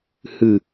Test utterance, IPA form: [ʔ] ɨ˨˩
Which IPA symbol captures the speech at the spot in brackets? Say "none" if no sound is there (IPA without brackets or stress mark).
h